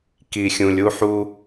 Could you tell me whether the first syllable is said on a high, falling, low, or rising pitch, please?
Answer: low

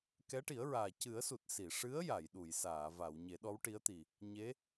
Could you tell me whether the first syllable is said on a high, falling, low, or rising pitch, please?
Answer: rising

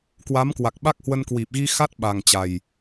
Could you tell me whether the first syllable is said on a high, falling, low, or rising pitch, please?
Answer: rising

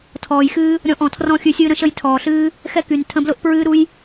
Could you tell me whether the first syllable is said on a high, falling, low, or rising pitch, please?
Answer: low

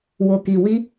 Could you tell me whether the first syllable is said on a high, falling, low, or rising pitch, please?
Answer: low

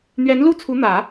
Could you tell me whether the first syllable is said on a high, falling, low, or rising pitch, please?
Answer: rising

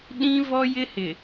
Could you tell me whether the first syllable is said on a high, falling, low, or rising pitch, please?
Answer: high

